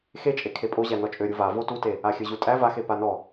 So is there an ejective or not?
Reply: yes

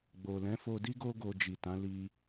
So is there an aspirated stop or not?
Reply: no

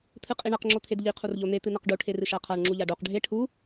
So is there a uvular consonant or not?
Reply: yes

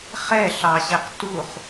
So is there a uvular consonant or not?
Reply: yes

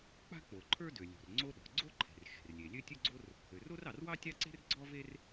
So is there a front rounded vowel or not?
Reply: yes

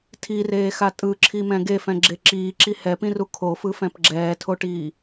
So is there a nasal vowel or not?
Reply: yes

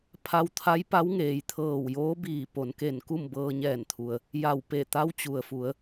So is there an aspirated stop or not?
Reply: yes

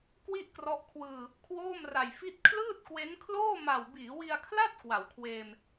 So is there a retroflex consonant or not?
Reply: no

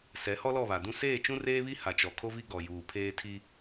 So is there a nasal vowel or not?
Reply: yes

